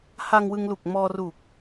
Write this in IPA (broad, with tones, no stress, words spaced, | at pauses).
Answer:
ha˧ŋwɯ˧ŋlu˨˩k̚ mɔː˧ru˨˩k̚